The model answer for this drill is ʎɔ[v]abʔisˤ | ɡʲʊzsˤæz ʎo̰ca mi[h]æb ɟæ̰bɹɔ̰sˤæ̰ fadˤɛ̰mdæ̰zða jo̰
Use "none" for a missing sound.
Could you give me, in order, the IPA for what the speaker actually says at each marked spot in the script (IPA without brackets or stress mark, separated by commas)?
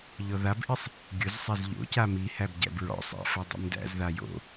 ð, h